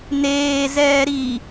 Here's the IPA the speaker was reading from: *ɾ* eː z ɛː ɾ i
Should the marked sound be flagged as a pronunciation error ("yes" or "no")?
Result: yes